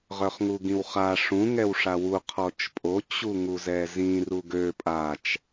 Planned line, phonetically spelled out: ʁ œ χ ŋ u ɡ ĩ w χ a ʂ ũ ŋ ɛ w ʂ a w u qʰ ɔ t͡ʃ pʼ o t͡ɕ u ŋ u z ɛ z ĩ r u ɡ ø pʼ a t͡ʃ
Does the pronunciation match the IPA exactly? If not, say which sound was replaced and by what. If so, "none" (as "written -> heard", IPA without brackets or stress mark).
none